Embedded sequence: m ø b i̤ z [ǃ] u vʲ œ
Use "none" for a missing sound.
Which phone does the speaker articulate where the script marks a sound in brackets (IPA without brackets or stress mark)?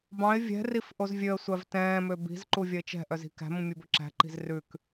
ǃ